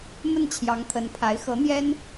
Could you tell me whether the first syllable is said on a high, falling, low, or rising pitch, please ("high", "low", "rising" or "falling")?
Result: falling